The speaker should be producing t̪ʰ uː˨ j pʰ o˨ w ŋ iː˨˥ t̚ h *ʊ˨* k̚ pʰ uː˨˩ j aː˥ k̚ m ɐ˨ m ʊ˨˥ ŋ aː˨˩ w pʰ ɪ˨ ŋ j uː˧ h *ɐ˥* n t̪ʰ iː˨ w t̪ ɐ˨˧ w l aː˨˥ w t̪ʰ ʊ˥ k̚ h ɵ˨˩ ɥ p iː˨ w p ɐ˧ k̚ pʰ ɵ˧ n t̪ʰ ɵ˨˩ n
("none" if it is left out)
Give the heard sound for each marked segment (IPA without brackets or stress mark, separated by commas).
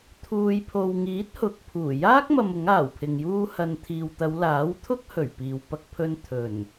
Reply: ʊ˨, ɐ˨